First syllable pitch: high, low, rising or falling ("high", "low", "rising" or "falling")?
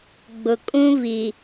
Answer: low